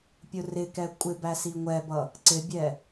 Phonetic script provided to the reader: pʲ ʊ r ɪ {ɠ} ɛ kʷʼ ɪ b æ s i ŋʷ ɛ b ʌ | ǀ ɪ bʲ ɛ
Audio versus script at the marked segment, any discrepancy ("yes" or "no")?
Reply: yes